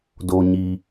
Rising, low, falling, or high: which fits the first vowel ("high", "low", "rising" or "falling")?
low